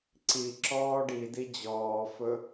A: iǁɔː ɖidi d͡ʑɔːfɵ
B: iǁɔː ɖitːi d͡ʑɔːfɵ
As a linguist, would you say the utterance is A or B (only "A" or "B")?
A